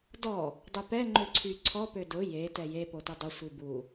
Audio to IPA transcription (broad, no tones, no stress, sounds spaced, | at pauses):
d ɔ | dˤ ʊ p ɛ ŋ͡ǃ ø ǀʰ y ǀʰ ɔ p ø d ʊ j e t ɛ j e p o t ɪ dˤ ʊ sʷ i b u